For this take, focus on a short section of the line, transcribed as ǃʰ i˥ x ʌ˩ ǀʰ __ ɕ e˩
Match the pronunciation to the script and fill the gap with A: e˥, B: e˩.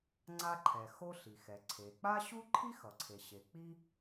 B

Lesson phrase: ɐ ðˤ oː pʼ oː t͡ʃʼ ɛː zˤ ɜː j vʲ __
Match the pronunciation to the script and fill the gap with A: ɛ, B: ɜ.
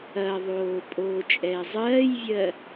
B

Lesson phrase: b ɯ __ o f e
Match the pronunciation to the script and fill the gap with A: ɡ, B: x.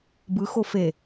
B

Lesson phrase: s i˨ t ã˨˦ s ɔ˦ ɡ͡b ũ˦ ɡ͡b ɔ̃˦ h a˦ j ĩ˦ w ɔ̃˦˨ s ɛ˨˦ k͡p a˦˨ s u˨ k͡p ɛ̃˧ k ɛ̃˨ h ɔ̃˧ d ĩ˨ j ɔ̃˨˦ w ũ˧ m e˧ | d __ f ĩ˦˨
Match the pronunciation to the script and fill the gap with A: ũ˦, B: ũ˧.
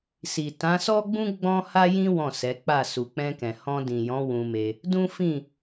A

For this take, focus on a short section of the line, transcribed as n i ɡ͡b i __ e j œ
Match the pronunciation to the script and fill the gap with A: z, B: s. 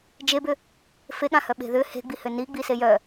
B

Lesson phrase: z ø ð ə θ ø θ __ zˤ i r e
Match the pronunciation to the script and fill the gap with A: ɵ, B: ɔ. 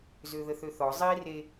B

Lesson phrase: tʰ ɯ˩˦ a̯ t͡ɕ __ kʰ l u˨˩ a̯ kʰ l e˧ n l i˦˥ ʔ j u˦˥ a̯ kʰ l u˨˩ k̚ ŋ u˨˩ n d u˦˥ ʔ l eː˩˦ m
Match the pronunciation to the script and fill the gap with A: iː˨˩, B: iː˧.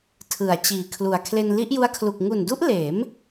A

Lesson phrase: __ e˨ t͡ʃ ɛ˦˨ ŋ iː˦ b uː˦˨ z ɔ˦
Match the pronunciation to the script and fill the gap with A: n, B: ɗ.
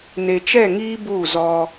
A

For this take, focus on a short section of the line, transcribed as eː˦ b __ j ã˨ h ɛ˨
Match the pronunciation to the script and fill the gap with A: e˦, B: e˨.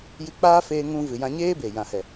B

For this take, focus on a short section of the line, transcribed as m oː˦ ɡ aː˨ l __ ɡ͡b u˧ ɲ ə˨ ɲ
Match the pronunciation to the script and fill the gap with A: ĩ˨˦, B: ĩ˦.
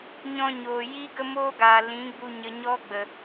A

